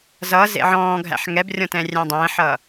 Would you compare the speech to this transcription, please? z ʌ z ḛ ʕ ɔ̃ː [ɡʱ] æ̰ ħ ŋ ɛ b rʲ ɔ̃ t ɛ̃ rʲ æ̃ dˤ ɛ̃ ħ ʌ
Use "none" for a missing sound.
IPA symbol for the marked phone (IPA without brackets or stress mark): ɡʱ